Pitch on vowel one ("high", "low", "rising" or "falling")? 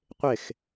falling